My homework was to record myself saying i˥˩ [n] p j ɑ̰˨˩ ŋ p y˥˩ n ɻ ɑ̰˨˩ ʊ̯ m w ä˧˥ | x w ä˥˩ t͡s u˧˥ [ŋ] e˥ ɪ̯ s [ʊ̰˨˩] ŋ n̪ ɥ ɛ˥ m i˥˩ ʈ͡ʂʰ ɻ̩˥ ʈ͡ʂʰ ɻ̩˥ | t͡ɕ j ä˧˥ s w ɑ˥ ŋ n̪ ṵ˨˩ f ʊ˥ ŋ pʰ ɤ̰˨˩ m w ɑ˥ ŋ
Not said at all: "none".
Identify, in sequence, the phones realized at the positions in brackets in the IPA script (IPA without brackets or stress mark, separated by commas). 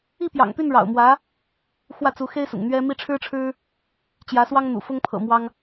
none, x, ʊ̰˨˩